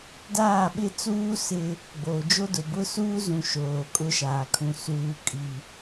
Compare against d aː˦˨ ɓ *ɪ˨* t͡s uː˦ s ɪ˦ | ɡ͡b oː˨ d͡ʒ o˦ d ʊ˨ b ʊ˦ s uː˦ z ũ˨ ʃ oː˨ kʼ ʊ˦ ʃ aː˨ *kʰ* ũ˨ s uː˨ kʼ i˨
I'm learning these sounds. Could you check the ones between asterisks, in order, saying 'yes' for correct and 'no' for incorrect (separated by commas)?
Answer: no, yes